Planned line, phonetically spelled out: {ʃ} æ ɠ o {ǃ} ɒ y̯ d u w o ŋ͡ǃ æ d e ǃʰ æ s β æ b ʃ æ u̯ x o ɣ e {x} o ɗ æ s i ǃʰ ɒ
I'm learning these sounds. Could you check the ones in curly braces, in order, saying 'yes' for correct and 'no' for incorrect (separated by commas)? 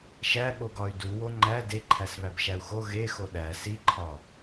yes, no, yes